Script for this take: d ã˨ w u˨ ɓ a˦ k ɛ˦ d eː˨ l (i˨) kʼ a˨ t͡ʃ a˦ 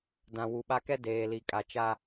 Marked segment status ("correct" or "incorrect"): correct